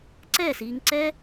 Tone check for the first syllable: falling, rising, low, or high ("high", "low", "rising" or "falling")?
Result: falling